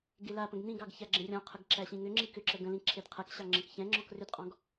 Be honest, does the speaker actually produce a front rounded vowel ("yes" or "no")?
yes